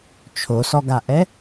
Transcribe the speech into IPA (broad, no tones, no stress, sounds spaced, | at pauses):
t͡ʃʰ o s ɔ ɡ a ʔ ɛ